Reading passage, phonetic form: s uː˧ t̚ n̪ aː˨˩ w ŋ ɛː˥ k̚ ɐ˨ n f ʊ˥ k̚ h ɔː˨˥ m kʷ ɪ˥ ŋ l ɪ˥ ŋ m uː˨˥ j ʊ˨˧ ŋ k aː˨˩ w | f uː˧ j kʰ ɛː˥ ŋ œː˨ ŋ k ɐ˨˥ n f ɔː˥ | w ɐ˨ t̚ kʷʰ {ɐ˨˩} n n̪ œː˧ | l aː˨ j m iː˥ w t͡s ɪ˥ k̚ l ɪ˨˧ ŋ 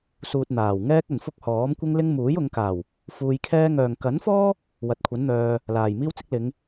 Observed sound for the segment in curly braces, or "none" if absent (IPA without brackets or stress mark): ɐ˨˥